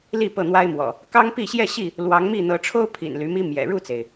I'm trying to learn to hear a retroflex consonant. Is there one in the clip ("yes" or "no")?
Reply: yes